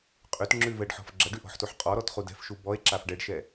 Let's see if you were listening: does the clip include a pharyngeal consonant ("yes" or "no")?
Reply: yes